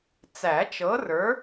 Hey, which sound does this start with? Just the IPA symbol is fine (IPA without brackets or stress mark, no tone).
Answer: t͡s